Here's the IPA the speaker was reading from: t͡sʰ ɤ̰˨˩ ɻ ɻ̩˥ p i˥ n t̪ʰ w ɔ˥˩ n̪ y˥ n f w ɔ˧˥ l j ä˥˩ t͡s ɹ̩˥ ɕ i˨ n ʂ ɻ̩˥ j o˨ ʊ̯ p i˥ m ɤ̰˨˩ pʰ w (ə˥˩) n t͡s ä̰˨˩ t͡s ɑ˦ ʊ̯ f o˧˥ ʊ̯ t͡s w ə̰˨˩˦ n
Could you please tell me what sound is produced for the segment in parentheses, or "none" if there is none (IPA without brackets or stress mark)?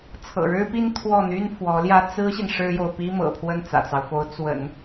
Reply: ə˥˩